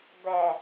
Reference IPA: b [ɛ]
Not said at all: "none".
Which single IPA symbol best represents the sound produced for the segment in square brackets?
ɛ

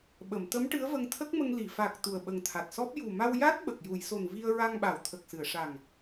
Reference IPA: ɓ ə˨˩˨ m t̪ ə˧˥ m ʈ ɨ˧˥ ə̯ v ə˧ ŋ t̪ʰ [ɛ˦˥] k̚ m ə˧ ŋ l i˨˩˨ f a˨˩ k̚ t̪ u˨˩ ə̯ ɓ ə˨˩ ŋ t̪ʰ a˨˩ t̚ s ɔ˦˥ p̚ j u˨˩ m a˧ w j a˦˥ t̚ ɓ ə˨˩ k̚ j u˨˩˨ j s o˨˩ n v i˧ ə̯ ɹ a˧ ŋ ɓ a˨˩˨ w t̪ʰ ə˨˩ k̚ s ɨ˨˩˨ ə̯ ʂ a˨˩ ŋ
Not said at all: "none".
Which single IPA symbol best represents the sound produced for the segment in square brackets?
ə˦˥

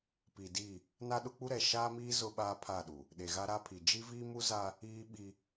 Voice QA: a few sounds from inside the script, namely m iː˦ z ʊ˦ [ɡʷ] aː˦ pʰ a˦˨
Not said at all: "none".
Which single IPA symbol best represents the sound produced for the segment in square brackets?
ɓ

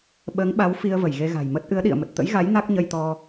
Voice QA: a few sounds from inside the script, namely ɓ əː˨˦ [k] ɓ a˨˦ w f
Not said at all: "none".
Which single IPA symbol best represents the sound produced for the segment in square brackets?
ŋ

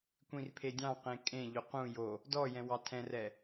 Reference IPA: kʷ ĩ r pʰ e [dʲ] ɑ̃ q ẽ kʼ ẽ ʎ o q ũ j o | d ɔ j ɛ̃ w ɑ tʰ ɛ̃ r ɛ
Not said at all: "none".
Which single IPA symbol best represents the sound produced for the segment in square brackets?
dʲ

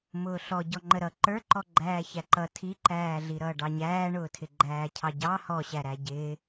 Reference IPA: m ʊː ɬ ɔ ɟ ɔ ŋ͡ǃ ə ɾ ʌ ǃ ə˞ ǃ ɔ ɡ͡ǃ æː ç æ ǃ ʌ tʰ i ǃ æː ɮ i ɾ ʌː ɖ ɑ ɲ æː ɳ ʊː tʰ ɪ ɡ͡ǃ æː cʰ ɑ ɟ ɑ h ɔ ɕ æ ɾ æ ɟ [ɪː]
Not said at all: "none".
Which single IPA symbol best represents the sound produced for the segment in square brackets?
ɪː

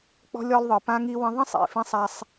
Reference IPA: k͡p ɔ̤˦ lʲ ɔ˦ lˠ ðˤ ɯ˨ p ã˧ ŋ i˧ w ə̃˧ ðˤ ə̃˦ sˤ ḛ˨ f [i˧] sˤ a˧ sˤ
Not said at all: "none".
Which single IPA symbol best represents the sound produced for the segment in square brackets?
ĩ˧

